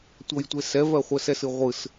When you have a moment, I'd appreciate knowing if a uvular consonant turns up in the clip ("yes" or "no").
yes